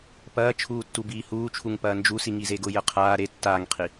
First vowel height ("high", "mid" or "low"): low